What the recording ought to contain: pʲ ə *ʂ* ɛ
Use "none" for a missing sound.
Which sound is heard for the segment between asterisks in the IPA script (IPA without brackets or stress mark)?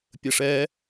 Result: ʂ